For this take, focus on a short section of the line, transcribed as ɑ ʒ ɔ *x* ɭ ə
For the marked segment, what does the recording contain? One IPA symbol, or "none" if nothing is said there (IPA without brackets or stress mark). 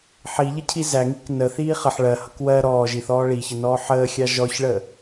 ç